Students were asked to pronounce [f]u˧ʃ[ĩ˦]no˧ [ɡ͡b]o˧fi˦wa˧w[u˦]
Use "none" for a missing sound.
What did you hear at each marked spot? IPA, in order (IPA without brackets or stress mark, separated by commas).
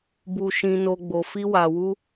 b, ĩ˧, ɡ͡b, u˦